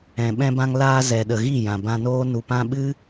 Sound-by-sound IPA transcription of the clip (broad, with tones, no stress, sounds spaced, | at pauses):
ɛ̃˨ ɓ ɛ̃˧ b ã˧ ŋ l aː˧ z ɛ˨ ɗ ə˨ ɣ i˦˨ j ã˨ b ã˧ n oː˦ n u˨ p ã˧ ɓ ɨ˦